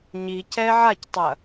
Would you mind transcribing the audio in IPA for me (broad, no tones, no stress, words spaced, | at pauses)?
ɲi cɛ ʕactˤɐ